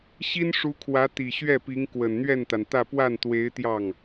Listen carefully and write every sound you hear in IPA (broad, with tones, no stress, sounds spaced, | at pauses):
ɕ i˥ n ʂ u˧˥ kʰ w ä˧˥ t̪ i˨˩ ɕ ɥ ɛ˥˩ p i˧˥ ŋ k w ə˨˩ n n̪ ɥ ɛ˥˩ n t̪ a˩ n t̪ ä˥˧ p w a˥˩ n t̪ w e˧˥ ɪ̯ t̪ j ɑ˥˩ ŋ